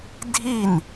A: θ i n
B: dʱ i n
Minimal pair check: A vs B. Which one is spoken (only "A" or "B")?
B